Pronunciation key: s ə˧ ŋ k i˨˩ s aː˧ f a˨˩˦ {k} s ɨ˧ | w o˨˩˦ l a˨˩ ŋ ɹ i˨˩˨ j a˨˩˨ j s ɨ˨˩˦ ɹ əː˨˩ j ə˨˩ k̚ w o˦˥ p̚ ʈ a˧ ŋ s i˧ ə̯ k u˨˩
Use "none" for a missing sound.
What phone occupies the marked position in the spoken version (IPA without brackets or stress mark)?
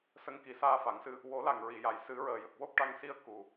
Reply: ŋ